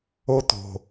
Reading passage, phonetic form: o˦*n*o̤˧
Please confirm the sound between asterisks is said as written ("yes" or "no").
no